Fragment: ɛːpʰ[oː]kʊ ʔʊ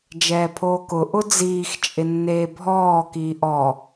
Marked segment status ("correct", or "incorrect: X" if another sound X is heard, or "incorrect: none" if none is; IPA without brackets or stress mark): correct